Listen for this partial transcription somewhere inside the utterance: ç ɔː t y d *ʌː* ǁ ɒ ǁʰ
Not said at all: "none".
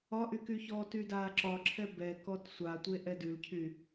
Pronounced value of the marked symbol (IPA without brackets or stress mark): aː